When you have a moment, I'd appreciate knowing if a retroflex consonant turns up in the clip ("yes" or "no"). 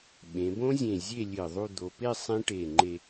yes